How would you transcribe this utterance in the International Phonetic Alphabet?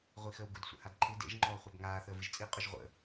ʁʷixəːwɡʊd sʷə̰hadǃʰɨ dḛʒ ŋ͡ǃɔːχʷœbŋaː θəːvɨʒt͡sʼi qʼʊʒʁʷə̰

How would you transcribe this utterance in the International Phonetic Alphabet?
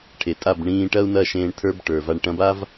ʈʰe˨tʼa˦˨b ɳĩː˧ ʈɐ˦u̯nɐ˦˨ ʃẽː˧ɳtʰə˞˦b ʈə˞˨va˧ɳ ʈɐ̃˧ba˦v

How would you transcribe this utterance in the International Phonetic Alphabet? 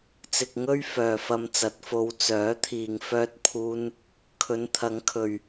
t͡sɪ˨k̚ŋɵ˥ɥ fœː˨fɐ˧mt͡sɐ˨˥t̚ fo˨˧wt͡sœː˨˥t̪ʰiː˨ŋ fœː˧t̚pʰuː˧n | kʰɵ˨˧n t̪ʰɐ˨˥ŋ kʰɵ˨ɥ

